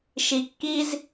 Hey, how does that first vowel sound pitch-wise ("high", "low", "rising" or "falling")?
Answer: low